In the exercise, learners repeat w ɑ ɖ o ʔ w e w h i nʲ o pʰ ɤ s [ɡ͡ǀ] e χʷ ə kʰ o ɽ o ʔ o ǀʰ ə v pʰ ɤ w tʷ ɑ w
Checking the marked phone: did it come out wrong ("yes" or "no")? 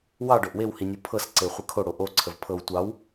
yes